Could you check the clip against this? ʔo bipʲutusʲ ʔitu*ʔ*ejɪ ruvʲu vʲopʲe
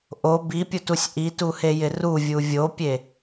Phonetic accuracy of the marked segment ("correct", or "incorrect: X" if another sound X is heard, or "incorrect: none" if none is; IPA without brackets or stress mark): incorrect: h